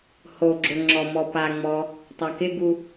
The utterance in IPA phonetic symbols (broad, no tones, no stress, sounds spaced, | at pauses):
h o ɡ͡ǁ o ŋ͡ǁ ɔ m ɔ p a ŋ͡m ɔ | tˤ a k ɪ ɡ u